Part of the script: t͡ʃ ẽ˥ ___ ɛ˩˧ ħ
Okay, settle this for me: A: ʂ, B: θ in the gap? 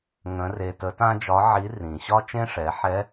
A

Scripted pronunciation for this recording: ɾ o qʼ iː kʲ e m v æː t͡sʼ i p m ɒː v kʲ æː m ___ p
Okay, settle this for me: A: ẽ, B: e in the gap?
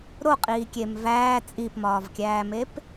B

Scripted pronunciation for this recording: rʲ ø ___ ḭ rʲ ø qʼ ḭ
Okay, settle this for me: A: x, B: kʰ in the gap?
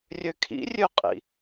B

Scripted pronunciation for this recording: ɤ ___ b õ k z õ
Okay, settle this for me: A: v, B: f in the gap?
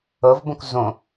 A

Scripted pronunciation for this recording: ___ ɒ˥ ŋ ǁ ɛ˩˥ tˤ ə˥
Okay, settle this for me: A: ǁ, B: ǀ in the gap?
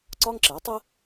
B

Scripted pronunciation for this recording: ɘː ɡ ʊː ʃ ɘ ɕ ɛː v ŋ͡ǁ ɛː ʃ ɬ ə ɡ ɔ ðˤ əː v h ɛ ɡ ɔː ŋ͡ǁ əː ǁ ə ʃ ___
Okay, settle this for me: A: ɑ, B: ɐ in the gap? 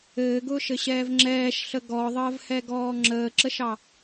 A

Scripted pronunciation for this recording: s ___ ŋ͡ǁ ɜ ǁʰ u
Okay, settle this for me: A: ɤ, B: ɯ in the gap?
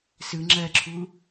B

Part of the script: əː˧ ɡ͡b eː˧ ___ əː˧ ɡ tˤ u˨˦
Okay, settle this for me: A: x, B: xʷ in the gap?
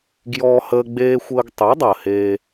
B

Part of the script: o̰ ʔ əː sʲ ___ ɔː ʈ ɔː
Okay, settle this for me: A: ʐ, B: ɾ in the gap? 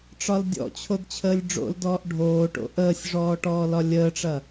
A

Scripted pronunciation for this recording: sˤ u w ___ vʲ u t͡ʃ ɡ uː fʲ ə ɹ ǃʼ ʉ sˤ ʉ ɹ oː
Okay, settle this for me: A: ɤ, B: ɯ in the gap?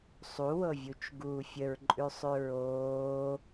A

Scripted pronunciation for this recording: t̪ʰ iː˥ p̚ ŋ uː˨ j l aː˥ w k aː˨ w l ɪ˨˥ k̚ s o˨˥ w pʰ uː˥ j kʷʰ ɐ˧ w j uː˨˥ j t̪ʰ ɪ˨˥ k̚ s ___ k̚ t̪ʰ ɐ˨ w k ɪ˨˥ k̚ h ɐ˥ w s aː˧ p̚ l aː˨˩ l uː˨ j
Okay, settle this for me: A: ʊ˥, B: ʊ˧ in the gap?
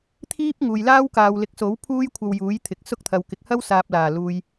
A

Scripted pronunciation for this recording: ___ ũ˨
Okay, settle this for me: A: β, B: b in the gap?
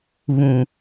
A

